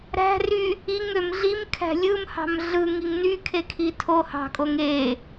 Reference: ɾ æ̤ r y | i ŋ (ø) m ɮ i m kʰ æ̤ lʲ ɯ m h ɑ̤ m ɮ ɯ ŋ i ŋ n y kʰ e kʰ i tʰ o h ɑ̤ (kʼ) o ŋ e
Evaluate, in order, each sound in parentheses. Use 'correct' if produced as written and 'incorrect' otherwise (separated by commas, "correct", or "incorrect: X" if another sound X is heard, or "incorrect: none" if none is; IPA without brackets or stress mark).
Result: correct, correct